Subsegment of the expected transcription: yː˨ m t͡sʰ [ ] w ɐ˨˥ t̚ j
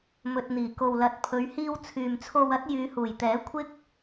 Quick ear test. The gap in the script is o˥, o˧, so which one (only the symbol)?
o˧